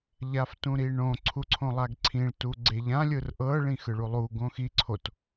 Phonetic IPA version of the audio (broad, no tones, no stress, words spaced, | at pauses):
ʎaftũɾiɳõ ǀʰuǀʰõlˠaɡǀʰĩɭ tuɡ͡ǀeʎã lʲɯrʔɤ ɭĩxɯɭulˠu ɡõxi ǀʰot